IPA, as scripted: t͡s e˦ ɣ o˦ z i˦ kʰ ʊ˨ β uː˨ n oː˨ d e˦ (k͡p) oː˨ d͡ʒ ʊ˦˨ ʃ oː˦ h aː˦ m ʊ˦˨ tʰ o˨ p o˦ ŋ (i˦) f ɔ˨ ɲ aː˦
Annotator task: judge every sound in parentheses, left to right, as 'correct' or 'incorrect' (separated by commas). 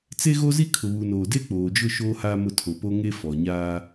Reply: correct, incorrect